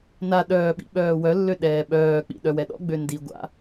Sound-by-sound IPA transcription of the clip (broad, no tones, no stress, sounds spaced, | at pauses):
n a ɗ œː ɓ ḭ ɓ œː w œ lː ø ɗ ɛː ɓ œː k͡p ḭ ɗ œ w ɛ ɗ ɔ̰ ɡ͡b ø n d i ɡʷ a̰